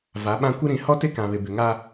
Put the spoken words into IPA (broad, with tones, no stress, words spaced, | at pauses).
va˨˦ɓã˦ kʷɪ˦ɾĩ˨˦ hɔ˦tɪ˦kã˨βɪ˨ bɪ˨ŋa˦